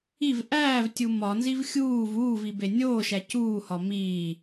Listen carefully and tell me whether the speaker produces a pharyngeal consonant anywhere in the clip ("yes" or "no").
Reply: no